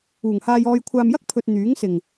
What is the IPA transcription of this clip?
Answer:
uː˨˩ ŋ h aː˧ j ɔː˧ j kʷʰ aː˧ m j ɐ˥ k̚ pʰ ɵ˨ t̚ n̪ yː˨˥ ŋ s ɪ˨˩ ŋ

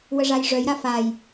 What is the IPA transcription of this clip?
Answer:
w ə ʐ a j ʐ œ j ɾ a f a j

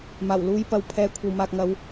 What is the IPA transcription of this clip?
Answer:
m aː˨˩ w l uː˨˧ j p ɐ˨˧ w pʰ ɛː˨ kʷʰ ɐ˨ w m aː˨ k̚ ŋ ɐ˨˧ w

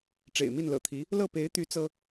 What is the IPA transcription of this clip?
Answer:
ʈ͡ʂ ḛ˨˩ ɪ̯ m i˥˩ n l ɤ̰˨˩ t̪ʰ i˧˥ | l ɤ˥˩ p e˧˥ ɪ̯ t̪ y˧˥ t͡s ɤ˥

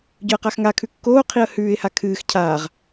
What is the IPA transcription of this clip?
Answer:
ɟ ɵ ə̯ q a x ŋ a kʰ ʉ kː oː qʰ i ə̯ h ʉː ɪ̯ h a kʰ ɨː x cʰ aː ʁ

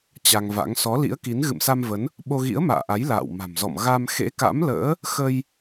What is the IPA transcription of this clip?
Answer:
t͡ɕ a˧ ŋ v a̰˧˥ ŋ s ɔ˨˦ l ḭ˧˥ ə̯ k i˨˦ n ɣ ɨ̰˧˨ m s a˧ m v ə˨˦ n | ɓ o˧ ɣ ḭ˧˥ ə̯ m a̰ː˧˨ ʔ a˨˦ j l a̰ː˧˨ w m a̤˨˩ m z ɔ̰˧˨ m ɣ a˧ m x ḛ˧˥ k a̰˧˥ m l ə̰ː˧˥ | x ə˧ j

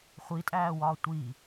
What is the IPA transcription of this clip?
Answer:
χʷ i tʼ æː w ɒː tʷ i

